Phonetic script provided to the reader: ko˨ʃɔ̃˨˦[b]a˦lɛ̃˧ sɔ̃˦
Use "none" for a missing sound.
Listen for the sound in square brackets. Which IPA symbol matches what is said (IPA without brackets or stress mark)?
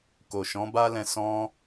b